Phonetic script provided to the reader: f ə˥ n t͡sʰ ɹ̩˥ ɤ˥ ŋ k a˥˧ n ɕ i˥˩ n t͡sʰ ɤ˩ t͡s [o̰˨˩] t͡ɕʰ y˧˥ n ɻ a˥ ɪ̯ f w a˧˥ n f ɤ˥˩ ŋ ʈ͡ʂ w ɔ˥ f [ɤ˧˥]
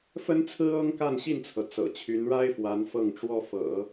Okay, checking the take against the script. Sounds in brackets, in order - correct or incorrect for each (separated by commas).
incorrect, incorrect